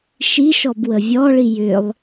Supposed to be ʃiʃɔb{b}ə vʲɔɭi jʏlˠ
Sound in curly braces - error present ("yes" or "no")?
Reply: yes